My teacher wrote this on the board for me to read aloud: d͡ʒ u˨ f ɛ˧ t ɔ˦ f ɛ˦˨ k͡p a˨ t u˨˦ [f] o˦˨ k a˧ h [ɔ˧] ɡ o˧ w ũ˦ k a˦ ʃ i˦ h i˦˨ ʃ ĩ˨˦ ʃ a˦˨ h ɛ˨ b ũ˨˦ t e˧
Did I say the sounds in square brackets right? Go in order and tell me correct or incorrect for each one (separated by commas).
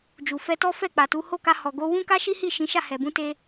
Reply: incorrect, incorrect